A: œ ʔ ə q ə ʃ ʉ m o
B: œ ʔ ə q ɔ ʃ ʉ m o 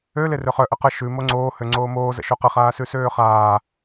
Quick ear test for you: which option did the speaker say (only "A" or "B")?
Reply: A